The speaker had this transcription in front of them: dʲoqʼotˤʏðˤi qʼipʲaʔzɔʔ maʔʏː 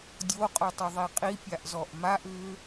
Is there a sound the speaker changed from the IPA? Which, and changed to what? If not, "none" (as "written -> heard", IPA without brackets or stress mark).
none